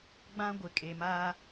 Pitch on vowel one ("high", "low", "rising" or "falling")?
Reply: high